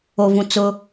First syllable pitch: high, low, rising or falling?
low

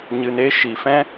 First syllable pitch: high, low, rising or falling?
low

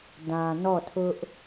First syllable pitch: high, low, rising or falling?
low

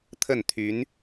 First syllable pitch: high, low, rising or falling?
falling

